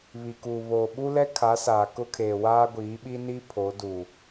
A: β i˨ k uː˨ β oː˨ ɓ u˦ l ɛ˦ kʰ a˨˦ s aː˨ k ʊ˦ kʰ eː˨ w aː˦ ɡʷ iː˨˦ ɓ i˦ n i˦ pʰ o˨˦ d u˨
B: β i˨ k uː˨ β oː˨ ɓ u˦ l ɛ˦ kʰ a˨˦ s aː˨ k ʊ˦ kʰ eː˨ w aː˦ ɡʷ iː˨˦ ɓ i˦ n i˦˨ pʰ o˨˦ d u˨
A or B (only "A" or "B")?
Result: A